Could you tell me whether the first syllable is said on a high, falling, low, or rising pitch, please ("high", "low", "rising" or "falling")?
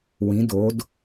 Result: rising